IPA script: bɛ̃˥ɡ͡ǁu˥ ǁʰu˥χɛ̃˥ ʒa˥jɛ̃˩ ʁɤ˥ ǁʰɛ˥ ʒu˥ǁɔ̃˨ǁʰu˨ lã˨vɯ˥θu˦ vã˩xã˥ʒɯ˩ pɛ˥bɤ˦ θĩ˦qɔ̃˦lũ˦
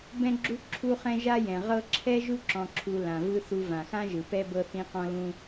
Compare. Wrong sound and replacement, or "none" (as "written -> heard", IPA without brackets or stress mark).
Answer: none